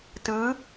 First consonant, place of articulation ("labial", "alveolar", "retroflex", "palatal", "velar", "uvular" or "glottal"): alveolar